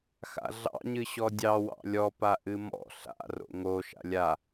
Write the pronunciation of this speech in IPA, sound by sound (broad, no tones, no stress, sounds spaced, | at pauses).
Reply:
x a̰ ɮ ɑ̰ ɲ ɨ ɕ ɔ dʲ ɑ w ɑ̰ lʲ ɔ p a ʔ ɨ m ɔ̰ ɬ a̰ r o̰ ŋ o ʃ a̰ lʲ a